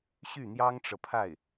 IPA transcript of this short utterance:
ɕy˥˩n̪jɑ˥ŋʈ͡ʂɤ˨pʰa˥˩ɪ̯

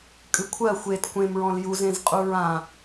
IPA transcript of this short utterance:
kʼɨkʷʰɜ xʷet kʷẽm ɹɔ̃ljuzẽzqʼuɹ ã

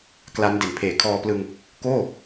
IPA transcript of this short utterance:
kla˦˥n de˨˩npʰeː˨˩ kʰɔː˧plɯ˧ŋ | koː˥˩

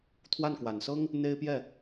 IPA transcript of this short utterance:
t̪ʰwa˥˩nkwa˨˩nsɤ˥ŋ | n̪e˥ɪ̯pjɛ˥˩

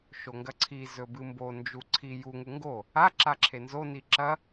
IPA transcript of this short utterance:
ʃoŋɡɐǀʰi zɵbɨmbo nd͡ʒuǀʰi juŋu ŋɡo | a ǁaǁʰenzoni ǁɐ

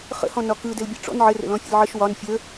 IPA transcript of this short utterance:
χə̰hɔ̃nɒ kɯdɘlbʲɐ ʈ͡ʂɔ̰n ʕɘrə̰ lɔ̃fʲə̰lʕəʃ wɒn fʲə

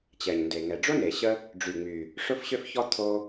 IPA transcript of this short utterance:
t͡ɕɛ˩ɲnde˩ ŋɛ˩ɖ͡ʐo˥ne˩ ɕə˥ | ɖ͡ʐy˩ŋ͡my˩ | ʂʊ˥fɕʏ˥fçɔ˥ t̪ʰo˥

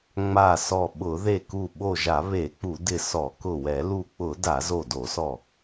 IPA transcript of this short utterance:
ŋ͡ma˧˩sɔ˧˩ɓʊ˧˩˧ ðe˧˩ku˧˩ ɓo˧˩ʒa˧˩˧ βe˧˩˧k͡pu˧˩˧dɪ˧˩ sɔ˧˩˧kʊ˧˩wɛ˧˩˧ lu˧˩k͡pʊ˧˩˧ da˧˩˧zo˧˩do˧˩˧sɔ˧˩

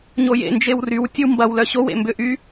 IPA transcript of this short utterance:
ɲojḛ nd͡ʒewryw tʲəwmbɐw lœɕowḛ mbʏ ʔy

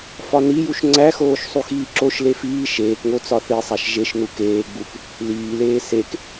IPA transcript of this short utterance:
fɒnijuʃ ŋ͡ǀæxoːʃ sˤuxiːǁoʃle fiː ʃeːkŋo t͡sɒθisˤæʃ ʒeʃnu keːɡ͡buk | liːleː sek

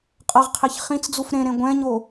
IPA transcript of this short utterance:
qʼɤʁqʰeç χĩt͡sd͡zuf ɾẽɾẽ ɡʷɛ̃ɲo

